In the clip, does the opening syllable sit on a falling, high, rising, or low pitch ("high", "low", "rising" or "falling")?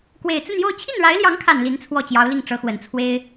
low